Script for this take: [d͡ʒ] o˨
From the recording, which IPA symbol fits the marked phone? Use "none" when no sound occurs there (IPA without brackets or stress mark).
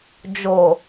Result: d͡ʒ